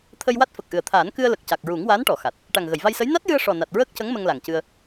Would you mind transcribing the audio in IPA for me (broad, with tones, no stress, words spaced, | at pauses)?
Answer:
t̪ʰə˧jwa˦˥t̚ fə˨˩k̚ʔɨ˨˩ə̯t̪ʰaː˨˩˦n kɨ˧ə̯lə˨˩k̚ca˨˩k̚ ɹu˨˩˦ŋwaː˧˥nʈɔ˨˩˨xa˨˩t̚ | ʈa˨˩ŋɣə˨˩˨jva˧jsə˧˥j na˦˥t̚jɨ˧ə̯ ʂɔ˨˩na˨˩t̚ ɹəː˦˥k̚cə˧˥ŋ mə˧ŋla˨˩ŋcɨ˧ə̯